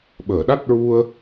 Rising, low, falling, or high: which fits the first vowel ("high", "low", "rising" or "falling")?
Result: low